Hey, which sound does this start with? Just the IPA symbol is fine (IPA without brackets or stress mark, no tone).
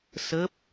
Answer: s